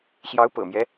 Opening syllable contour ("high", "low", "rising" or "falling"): rising